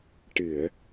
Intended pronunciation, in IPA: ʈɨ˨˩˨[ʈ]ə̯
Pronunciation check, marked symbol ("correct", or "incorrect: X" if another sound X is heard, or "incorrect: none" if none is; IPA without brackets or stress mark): incorrect: none